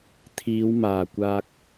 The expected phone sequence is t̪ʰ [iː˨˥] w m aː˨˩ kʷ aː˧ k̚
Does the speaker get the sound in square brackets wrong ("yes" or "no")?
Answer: yes